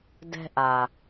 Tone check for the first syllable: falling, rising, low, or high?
high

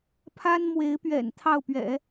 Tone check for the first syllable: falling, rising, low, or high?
high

